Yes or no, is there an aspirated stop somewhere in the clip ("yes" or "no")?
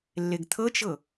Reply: yes